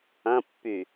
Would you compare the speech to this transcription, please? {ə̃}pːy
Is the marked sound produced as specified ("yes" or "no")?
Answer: no